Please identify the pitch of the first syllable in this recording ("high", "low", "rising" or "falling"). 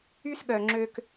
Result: high